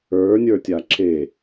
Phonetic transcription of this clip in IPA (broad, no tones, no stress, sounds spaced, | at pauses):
ə˞ nʲ ə˞ tʲ a ǁ e